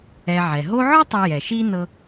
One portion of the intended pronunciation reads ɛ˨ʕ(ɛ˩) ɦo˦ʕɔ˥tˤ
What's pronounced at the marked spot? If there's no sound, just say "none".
ɛ˩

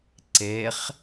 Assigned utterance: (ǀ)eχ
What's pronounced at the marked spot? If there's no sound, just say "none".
ǀ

